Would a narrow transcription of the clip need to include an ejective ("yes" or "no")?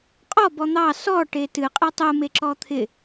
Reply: yes